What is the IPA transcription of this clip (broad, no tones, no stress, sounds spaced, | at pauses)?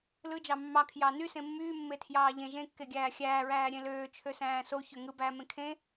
l ɯ d͡ʒ ɑ mː ɑ kʰ j ɑ n y s ẽ mː yː mː e tʰ j ɑː ʎ ẽ ʒ ẽ kː e ɡʲ æː xʲ æː ɹ æː ɾʲ ẽ l øː t͡ʃʰ ø s æ̃ː s o ç ø ŋ ɯ b æː m ẽ kʰ ẽ